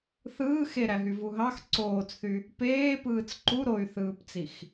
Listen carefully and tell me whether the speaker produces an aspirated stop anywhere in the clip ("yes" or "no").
no